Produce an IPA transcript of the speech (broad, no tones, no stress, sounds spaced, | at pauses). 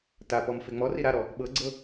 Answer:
t a p ɔ m f e ŋ͡m ɔ r i ɾ a ɾ ɔ | ɓ ɤ ɡ͡ǀ ɤ